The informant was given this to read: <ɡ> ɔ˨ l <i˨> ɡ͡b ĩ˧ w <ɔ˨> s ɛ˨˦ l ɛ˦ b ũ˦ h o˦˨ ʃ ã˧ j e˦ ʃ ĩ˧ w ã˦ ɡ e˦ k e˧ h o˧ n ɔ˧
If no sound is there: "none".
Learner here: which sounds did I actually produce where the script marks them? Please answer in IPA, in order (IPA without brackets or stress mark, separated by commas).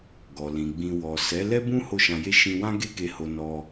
ɡ, ĩ˨, ɔ˨